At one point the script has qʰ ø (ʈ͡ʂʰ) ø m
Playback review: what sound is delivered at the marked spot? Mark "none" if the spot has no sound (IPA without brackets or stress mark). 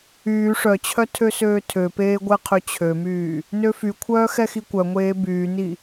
t͡ɕʰ